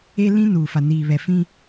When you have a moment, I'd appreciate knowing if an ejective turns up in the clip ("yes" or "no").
no